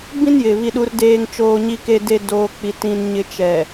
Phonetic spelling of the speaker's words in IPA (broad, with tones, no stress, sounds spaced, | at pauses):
b ĩ˦ n j ɪ˨ β i˨ ɗ u˨ r d eː˨ ŋ t͡ʃ oː˨ ɲ i˨ k e˨ d e˨ d oː˨ k͡p i˨ t ĩ˨ n ɲ ɪ˨ t͡ʃ ɛ˨